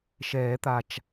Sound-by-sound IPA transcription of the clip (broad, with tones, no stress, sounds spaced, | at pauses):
ʃ ɛː˨˩˦ t̪ a˨˩ t͡ʃ